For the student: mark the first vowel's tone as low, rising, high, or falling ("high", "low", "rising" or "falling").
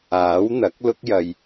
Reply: rising